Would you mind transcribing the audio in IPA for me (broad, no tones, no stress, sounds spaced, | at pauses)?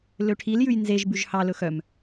l ø ʈʰ i l j ʉ j n z e ʒ b ʉ ʒ h ɑ l ɵ x œ m